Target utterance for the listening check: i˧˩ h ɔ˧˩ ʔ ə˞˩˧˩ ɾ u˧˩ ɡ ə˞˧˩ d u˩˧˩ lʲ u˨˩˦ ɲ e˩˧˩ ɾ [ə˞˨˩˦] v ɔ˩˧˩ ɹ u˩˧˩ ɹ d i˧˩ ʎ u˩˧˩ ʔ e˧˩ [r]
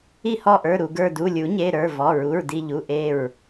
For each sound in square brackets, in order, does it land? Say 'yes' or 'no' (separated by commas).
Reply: no, no